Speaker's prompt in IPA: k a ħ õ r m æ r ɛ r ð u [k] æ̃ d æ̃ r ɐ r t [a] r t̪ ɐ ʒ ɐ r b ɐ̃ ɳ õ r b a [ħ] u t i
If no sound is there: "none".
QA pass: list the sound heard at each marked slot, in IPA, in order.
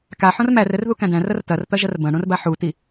k, ɐ, ħ

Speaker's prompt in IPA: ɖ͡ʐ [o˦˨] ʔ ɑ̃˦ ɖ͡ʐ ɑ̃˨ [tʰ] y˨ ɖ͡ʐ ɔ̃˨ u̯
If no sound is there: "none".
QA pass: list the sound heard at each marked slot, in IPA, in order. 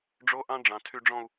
o˦, tʰ

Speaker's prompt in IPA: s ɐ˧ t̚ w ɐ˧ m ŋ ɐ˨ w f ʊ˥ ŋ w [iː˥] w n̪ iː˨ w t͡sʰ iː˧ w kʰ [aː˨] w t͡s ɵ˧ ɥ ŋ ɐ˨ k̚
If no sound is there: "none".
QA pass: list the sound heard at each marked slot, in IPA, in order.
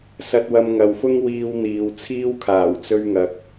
iː˧, aː˨˩

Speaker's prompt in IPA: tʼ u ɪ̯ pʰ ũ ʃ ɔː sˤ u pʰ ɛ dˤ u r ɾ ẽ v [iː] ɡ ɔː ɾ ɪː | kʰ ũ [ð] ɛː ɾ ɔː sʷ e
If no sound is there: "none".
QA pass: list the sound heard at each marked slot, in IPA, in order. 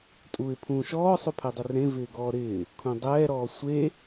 ɪː, dˤ

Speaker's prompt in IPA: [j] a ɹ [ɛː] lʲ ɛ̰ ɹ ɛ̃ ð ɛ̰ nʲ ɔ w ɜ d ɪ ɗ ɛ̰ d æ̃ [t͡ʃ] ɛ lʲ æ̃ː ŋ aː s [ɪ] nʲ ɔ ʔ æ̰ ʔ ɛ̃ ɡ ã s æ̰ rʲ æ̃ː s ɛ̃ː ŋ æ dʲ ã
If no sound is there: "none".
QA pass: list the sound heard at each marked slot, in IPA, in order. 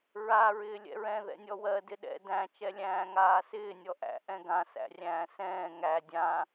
ɹ, ɪː, t͡ʃ, ɪː

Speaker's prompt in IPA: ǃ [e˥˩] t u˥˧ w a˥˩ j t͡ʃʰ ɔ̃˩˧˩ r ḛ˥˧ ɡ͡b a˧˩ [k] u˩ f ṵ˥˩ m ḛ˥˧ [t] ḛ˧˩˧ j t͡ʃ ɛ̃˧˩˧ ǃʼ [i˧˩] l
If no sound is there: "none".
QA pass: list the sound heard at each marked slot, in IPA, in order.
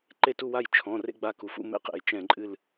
e˥˩, k, q, ɨ˧˩

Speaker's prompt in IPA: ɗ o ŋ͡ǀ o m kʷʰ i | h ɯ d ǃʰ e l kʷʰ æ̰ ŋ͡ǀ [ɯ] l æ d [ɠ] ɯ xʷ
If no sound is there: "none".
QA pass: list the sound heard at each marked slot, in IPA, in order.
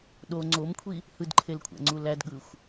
u, ɠ

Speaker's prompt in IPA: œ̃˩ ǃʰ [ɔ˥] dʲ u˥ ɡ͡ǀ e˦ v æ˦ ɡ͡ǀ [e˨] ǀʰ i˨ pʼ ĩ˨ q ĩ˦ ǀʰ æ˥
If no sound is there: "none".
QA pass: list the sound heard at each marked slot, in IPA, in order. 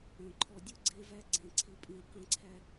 ɔ˨, ẽ˨

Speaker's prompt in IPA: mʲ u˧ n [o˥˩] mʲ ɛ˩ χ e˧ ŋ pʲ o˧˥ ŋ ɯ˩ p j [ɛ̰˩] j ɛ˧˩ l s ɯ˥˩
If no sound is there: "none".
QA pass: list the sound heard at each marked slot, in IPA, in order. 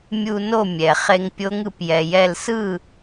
o˥˩, ɛ˩

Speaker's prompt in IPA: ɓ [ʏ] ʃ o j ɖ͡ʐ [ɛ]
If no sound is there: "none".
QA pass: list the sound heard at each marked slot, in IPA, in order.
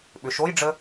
ʏ, ə

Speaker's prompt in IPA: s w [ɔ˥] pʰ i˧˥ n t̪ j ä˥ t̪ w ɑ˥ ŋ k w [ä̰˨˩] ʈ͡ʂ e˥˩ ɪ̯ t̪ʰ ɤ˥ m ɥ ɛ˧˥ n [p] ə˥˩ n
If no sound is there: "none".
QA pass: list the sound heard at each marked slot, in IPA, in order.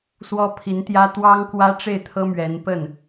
ɔ˥, ä˥, p

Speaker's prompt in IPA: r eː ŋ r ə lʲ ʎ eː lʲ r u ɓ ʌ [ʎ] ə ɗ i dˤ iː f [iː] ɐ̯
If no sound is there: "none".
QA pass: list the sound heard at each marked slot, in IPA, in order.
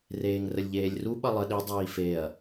lˠ, eː

